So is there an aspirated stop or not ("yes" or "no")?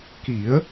no